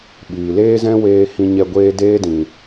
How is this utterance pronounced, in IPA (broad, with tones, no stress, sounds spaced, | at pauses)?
ɓ iː˨ l eː˦ z ɛ̃˦ w eː˧ h ĩ˧ ɲ ɛ˧ ɡʷ eː˦ d eː˦ d ĩ˨